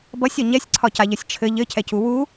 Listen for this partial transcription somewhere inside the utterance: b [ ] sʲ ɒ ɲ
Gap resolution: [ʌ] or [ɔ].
ʌ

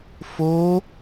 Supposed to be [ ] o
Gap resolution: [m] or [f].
f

